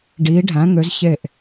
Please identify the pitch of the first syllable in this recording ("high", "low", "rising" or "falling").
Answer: rising